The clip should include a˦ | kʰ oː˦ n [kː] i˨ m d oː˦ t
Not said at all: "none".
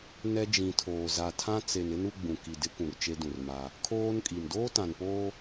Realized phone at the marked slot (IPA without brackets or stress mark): kʼ